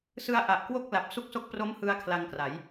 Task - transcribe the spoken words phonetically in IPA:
sɯ˧a̯ ʔa˨˩ʔkwo˥˩k̚ la˨˩p̚ su˥˩k̚so˥˩k̚ pro˦˥m hɯ˧a̯ kʰla˧ŋkra˩˦j

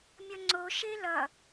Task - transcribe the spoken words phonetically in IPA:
mʲʌŋ͡ǀo ʃelʌ

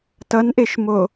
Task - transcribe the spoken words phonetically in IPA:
tʌnʔeʃmo

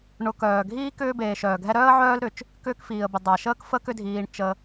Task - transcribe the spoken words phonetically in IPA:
ɳʊ˨ kœː˩ɡʱiː˥ kʏː˥ beː˨ʃœː˩ɡʱɛ˥ ɾœː˥ə̯ʕœː˦lɾʏ˩t͡ʃ | kʏː˦kfiː˩ə̯bʊ˩ dˤa˩ʃəː˥k fə˥kʏ˦dʱiː˨ɳ t͡ʃə˨

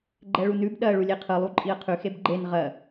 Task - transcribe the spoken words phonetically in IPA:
ɡ͡ǃɛɭunʉb ɗɜ ɭulʲeqʰɯ lˠuǃʼiə̯qʰʉ xebɡ͡ǃen ʁɜ

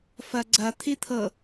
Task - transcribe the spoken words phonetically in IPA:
fɐɡ͡ǀɐ t̪ʰit̪ʰɤ

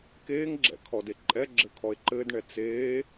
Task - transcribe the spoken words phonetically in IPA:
keːŋɡ͡ǁɛ̰kʰɔde ǃʼɛɡ͡ǁɘkʰɔe̯ ǃɘːdɳɛ t͡seː

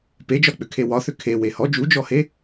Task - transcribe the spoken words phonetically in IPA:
ped͡ʒɒk͡pʏkʰe wɒθʏ kʰewe hɔ d͡ʒud͡ʒɔhe

